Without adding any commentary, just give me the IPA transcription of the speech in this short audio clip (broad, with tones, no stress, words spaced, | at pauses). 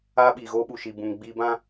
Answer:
aː˦ɓiː˨ɣoː˦ɓu˨ ʃi˨bũ˨ŋ ɡ͡biː˦ bã˦